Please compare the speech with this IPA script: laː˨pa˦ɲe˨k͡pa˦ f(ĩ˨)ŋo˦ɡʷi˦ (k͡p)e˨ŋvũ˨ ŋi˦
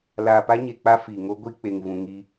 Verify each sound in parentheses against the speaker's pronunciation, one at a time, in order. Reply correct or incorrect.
incorrect: i˨, correct

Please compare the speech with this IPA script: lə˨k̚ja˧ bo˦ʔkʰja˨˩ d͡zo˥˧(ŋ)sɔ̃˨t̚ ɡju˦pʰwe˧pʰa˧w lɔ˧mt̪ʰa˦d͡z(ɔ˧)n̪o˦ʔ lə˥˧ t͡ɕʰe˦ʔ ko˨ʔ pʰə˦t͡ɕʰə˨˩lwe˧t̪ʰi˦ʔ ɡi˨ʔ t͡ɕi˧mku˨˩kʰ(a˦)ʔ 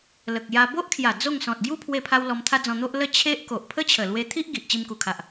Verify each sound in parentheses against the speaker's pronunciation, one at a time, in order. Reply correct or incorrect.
correct, incorrect: ɔ̃˧, incorrect: a˨

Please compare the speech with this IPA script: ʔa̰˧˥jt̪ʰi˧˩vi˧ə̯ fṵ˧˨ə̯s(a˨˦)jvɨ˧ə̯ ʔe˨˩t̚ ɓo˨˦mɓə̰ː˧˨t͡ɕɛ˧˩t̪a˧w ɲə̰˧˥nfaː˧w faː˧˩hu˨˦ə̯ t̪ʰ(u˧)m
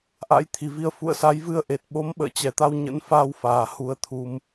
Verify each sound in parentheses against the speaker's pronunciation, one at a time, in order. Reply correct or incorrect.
correct, correct

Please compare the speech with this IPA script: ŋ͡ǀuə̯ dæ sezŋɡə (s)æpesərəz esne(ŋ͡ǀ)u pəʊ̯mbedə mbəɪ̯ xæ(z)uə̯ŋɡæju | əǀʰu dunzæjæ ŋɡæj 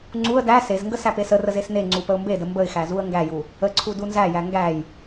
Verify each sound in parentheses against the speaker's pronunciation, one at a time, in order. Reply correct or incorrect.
correct, correct, correct

